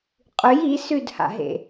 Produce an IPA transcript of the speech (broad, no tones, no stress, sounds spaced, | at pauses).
qʼ ʉ j i s ʉ d h a̰ ɦ ḛ